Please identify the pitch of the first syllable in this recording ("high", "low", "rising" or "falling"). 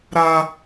high